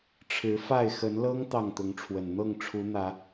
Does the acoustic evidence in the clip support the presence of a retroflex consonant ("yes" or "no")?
yes